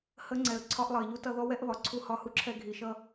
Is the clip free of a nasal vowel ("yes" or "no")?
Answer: yes